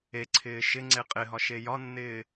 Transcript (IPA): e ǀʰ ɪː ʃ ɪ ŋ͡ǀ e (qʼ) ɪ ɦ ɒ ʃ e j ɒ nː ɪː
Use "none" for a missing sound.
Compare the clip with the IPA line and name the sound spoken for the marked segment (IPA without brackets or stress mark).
qʼ